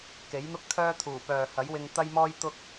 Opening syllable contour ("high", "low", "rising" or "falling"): rising